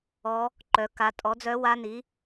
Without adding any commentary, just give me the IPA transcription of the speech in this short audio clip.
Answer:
ɔ˧˥ | ǃ œ˩˧ k a˩˧ tʼ ɔ˩˥ d͡z œ˧˥ w a˧˥ n i˩˥

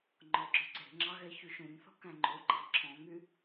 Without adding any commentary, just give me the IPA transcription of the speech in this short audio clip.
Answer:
ŋ͡ǃ ɔ ɡ͡ǁ ɵ ǀ e̤ ŋ͡ǁ ɑ ɣ ɛ ç y ʃ ũ ɲ θ ɔ̤ k æ̃ ŋ͡ǃ o ɡ͡ǃ ɑ ǁʰ ɔ̃ ŋ y

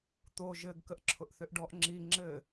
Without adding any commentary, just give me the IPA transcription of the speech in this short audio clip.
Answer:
t̪ o ʒ ɘ ɡ k ə ʔ ǁʰ ʊ ʔ θ ʏ ʔ ɖ ɔ ʔ ŋ͡ǁ i ŋ͡ǁ ɘ

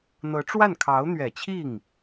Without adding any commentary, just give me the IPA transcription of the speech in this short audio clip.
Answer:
n̪ ɤ˧˥ ʈ͡ʂ w a˥˩ n kʰ ɑ˧˥ ʊ̯ n̪ ɥ ɛ˨˩ t͡ɕʰ i˥˩ ŋ

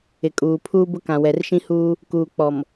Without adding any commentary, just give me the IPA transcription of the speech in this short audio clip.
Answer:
ɪ˨ kʼ uː˨ pʰ uː˦ b ʊ˦ k ã˨ w ɛ˨ r ʃ ĩ˦ h uː˦ | k uː˨ k͡p ɔ˨ m

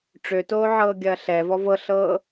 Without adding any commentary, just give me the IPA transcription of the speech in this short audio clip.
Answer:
ʈ͡ʂ ø t oː ʕ ɤː ɡʲ ɐː ɬ ɛ v ɔ v ɤ ɬ ɤː

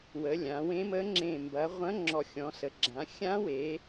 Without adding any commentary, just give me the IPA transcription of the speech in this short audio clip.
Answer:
w ə˩˧ lʲ ã˩˧ w ẽ˧˥ m ə˧˥ ŋ͡ǁ ẽ˨˩ m b ɐ˩˧ ʁʷ ɐ̃˧˥ ŋ͡ǁ ɔ˨˩ xʲ ɔ̃˩˧ s ə˩˧ ɡ͡ǁ ã˩˧ xʲ ã˧˥ w e˩˧

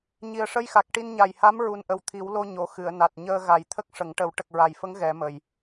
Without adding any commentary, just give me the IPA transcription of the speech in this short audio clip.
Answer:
ɲ i˨˩ ə̯ ʂ ə˧ j x a˨˩ k̚ ʈ i˧ n ɲ a˨˩ j h a˧˥ m ɹ u˨˩ n ʔ ə˨˩ w t̪ʰ i˨˩˦ w l o˧ ɲ o˨˩˨ x ɨ˨˩˨ ə̯ n a˨˩ t̚ ɲ əː˧ ɣ a˨˩˦ j t̪ʰ ə˦˥ k̚ ʂ ə˨˩˦ ŋ ʈ ə˨˩˦ w ʈ ə˨˩ k̚ ɹ a˨˩ j f ə˧˥ ŋ ɣ ɛ˨˩˦ m ə˨˩ j

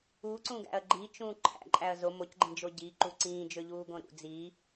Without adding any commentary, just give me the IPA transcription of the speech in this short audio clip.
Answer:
uː ǀ ũː ɡ æ̰ ɐ̯ ɡ͡ǃ i t͡ʃ ũː ǃʰ æ̰ ǃʼ æ ɐ̯ z o m o c ɡ͡ǃ ĩ d͡ʒ o ɟ i ǃ u ǀ ĩː d͡ʒ ø ʎ uː ɡ õ ɾ ṵ d͡z i

